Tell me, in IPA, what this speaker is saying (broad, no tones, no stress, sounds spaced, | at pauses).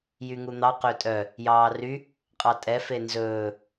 j y ŋ u n̪ ɑ q ø tʼ œ | j ɑː r y | qʼ ɑ tʼ ɛ f e n z ɵː